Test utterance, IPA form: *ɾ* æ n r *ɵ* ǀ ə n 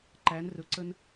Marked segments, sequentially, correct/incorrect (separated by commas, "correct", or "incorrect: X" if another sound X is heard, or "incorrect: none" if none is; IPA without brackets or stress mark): incorrect: ǃ, correct